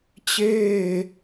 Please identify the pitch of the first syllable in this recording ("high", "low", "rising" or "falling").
falling